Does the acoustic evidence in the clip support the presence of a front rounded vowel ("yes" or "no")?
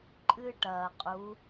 no